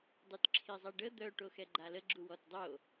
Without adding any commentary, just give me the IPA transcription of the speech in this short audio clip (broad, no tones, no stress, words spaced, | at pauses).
dˤytǁʰizˤɛɖə d̪œ ʈoxɛɡ͡ǃalə ɡ͡ǁuwɔtdˤo